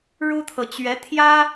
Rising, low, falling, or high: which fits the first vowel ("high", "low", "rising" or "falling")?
high